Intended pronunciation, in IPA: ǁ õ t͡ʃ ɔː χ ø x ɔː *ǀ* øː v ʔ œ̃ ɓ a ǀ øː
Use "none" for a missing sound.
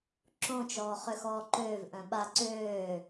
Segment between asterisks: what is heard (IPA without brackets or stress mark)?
ǃ